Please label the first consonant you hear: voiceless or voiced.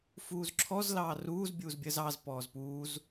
voiceless